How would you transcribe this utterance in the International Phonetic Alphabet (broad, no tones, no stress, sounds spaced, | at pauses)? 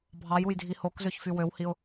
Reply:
bʱ ɑ j u j dʱ i h o k z ø ç f y w ø w h i ʊ̯